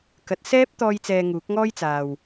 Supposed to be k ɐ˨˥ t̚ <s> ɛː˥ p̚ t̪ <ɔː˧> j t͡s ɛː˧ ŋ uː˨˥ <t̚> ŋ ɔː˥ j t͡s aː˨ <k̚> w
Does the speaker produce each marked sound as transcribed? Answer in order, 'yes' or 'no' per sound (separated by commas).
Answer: yes, yes, no, no